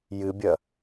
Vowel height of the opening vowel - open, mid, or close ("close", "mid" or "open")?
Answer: close